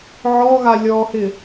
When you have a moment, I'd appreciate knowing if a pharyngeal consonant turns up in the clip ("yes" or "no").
yes